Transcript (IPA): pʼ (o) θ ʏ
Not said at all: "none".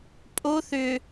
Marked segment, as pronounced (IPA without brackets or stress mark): o